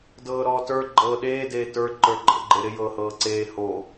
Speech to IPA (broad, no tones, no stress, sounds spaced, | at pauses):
d ɤː ɾ ɔː t ə˞ ɡ͡ǃ ɤː ɗ eː d eː t ə˞ ǃ ə˞ ǃʼ ə̰ ɡ͡ǃ e ɾ ɪ j ɤː h ɤː ǀ eː h o